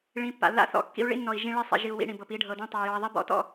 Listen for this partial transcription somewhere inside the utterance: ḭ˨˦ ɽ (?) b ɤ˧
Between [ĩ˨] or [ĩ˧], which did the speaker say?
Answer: ĩ˨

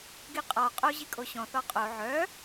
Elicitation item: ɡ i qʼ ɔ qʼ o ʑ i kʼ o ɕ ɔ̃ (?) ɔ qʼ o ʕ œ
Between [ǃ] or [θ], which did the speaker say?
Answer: θ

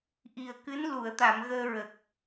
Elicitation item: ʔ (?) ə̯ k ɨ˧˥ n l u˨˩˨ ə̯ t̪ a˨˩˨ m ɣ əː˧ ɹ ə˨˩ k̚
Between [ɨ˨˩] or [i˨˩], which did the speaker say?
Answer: i˨˩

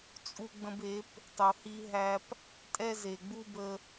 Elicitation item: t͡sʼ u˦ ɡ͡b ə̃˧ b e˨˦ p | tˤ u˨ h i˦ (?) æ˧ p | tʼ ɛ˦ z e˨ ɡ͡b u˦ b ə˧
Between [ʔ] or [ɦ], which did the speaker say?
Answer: ɦ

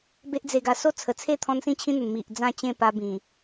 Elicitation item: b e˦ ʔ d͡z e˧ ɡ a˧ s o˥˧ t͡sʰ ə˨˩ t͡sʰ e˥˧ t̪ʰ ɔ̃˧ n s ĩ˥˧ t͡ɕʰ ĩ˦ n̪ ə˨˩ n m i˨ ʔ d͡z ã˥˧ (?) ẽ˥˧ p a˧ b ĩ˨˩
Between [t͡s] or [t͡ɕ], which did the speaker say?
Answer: t͡ɕ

